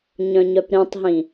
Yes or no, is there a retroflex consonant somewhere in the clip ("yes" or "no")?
no